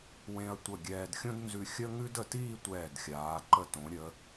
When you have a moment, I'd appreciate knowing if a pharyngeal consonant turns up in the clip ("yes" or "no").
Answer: no